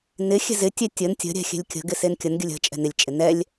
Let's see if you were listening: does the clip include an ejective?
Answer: yes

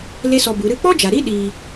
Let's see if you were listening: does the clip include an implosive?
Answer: yes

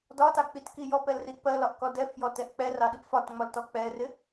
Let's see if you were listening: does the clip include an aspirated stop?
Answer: no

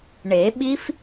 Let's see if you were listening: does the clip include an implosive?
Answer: yes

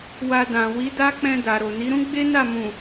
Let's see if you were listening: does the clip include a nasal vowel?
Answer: yes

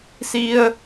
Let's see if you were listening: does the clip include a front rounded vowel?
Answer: no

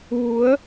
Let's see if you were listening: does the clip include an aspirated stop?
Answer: no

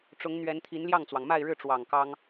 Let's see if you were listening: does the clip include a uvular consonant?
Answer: no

